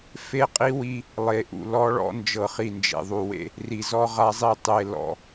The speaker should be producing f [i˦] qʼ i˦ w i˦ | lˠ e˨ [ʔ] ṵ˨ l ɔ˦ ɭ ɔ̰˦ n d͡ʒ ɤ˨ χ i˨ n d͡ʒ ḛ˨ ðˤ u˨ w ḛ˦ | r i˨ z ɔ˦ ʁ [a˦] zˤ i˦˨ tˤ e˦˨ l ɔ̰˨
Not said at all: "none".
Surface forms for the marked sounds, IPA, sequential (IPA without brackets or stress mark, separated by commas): e˦, ʔ, a˦